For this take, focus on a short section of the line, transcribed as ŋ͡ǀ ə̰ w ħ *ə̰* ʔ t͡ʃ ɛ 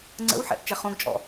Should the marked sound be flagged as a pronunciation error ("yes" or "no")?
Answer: yes